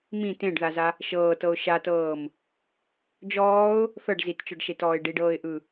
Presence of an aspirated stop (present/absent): absent